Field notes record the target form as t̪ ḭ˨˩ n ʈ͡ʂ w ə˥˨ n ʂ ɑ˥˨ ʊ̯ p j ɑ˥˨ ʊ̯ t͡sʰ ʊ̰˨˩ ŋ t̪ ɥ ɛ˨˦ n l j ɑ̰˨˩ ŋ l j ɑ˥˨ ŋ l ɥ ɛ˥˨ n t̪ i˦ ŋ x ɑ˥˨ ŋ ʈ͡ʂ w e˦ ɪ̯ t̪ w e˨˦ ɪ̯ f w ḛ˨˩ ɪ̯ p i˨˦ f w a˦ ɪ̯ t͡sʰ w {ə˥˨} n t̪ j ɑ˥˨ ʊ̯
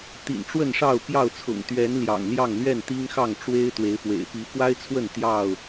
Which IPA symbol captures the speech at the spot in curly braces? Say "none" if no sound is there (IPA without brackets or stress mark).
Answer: ə˥˨